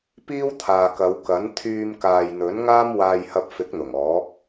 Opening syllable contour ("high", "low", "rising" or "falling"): high